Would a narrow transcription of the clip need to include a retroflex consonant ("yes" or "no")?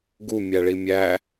yes